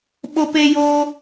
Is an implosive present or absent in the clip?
present